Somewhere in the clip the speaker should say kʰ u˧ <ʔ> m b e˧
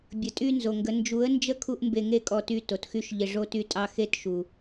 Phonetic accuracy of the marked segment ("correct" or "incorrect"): correct